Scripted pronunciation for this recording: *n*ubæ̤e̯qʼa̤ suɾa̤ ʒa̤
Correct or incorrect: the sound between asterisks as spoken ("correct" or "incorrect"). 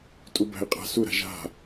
incorrect